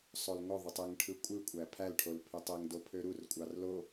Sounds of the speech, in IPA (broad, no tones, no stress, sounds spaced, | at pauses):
sˤ o l ŋ o ðˤ ɯ tˤ e ŋ ʈʰ ɯ kʷʼ ɯ kʷʼ æ pʰ æ l ʈʰ o l pʰ y tˤ e ŋ d o pʰ ø ɾ u r kʷʼ ɑ r l o